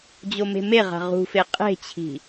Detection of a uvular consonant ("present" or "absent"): present